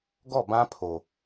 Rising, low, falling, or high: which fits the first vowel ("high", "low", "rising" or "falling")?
falling